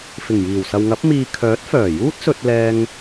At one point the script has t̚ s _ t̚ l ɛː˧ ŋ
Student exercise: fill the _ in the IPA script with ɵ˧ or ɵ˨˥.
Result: ɵ˧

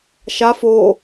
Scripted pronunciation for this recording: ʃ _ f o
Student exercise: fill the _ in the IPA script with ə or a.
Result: a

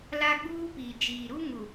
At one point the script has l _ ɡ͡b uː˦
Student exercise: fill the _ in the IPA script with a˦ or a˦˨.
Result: a˦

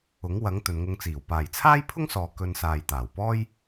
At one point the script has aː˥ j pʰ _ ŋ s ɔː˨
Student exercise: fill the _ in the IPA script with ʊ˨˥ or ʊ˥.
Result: ʊ˥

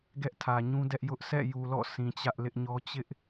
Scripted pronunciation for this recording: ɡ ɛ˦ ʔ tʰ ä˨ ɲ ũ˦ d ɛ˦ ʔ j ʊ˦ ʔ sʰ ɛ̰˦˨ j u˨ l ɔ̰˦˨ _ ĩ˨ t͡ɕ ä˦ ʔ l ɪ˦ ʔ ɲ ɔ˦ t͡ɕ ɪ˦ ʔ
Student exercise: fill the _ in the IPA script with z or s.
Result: s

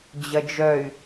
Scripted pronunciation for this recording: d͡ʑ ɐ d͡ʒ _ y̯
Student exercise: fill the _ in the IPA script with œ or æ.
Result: œ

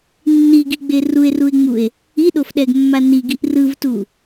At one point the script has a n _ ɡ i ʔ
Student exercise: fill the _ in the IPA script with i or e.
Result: i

